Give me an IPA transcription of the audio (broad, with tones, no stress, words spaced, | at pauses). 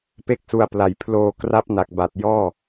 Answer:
pe˥˩k̚su˧a̯pla˨˩j pʰloː˧ kra˦˥p̚na˨˩k̚ba˨˩t̚ jɔː˥˩